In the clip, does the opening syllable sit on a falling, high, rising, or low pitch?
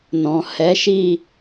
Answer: low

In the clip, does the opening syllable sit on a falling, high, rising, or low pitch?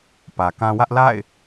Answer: low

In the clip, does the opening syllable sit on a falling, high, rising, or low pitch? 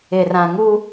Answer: low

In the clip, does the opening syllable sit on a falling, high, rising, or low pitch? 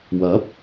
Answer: rising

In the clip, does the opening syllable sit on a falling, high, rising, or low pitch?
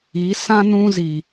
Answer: rising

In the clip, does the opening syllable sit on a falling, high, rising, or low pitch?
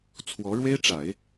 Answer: rising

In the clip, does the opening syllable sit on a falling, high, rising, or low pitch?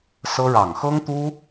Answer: high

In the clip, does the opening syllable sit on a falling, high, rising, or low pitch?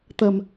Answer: low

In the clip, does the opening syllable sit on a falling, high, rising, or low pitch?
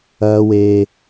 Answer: high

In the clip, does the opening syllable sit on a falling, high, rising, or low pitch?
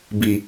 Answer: low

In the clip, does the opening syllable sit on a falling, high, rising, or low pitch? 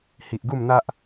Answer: low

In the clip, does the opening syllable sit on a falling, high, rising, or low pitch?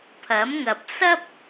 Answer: rising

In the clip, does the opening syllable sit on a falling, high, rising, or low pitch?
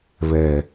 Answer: low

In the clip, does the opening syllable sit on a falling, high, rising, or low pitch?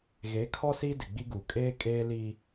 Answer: rising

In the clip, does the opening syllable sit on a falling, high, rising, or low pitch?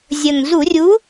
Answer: low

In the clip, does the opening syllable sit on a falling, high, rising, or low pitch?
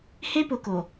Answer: high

